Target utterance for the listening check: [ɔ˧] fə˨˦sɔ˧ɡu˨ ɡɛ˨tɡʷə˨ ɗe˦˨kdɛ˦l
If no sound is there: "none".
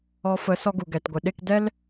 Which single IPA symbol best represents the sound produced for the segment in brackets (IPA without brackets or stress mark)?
ɔ˧